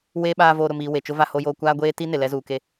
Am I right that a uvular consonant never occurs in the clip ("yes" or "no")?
yes